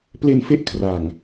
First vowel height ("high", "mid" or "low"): mid